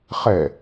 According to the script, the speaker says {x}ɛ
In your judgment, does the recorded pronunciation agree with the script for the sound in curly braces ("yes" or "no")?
no